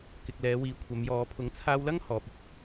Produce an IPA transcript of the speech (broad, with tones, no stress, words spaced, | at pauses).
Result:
kɪ˨k̚lɛː˨˧wiː˨˧ kʷʰɐ˨˧mjɔː˨˧ pʰʊ˨˥ŋt͡sʰaː˧wlɐ˥ŋ hɔː˧p̚ ɪ˧k̚